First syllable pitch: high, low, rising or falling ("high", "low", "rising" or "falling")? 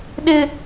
high